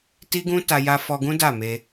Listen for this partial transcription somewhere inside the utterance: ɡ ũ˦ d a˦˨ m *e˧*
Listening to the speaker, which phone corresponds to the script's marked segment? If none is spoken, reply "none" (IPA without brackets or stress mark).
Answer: e˧